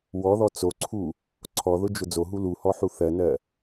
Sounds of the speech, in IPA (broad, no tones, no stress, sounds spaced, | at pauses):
w ɔ ð ɔ t͡s o ǀʰ u | ǀʰ ɔ ð ʊ d͡ʒ ʊ d͡z o ɦ u l u h ɔ ħ u θ ɜ n ɜ